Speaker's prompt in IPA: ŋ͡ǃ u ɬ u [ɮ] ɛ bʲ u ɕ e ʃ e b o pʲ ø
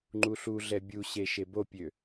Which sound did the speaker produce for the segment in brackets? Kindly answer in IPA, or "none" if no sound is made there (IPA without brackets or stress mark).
ɮ